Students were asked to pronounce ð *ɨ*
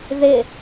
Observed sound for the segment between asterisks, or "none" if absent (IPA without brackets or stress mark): ɪ